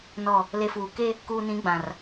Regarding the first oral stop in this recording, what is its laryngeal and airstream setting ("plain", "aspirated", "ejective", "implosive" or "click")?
plain